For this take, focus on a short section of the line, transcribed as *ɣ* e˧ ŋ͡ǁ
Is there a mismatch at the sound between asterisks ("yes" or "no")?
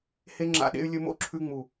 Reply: yes